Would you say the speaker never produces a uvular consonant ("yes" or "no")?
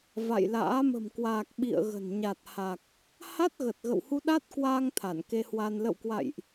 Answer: yes